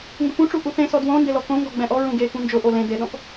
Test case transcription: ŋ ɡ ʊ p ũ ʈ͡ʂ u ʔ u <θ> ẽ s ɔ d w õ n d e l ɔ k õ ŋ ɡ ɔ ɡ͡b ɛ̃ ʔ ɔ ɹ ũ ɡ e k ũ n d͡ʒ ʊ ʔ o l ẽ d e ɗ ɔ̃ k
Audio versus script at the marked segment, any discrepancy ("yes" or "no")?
no